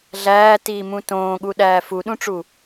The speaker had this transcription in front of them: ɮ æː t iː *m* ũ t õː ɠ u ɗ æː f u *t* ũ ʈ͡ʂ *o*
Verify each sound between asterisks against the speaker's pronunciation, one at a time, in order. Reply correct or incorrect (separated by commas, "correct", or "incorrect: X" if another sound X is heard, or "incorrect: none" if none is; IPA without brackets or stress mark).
correct, incorrect: ɗ, incorrect: u